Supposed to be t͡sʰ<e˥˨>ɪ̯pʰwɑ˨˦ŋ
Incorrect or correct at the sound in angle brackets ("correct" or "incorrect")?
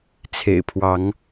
incorrect